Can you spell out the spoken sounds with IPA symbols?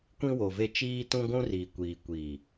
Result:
kʷĩ˦wo˨ve˦ t͡ʃiː˦tũ˦ ɡʷũ˦riː˨kʷiː˨kʷiː˨

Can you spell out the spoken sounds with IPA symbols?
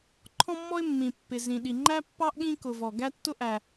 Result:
ǃʰɔ̃˥mːɔ˥ɪ̯ mːĩ˩ pːɪ˩zĩ˩ ɗi˩ŋ͡ǃæ˥pːɑ˥ʔ ɠĩ˥kʊ˩ vɔ˩ɡæ˥tːʊ˥ ʔæ˩

